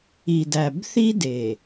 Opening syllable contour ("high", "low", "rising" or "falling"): low